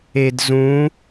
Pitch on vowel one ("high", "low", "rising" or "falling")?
low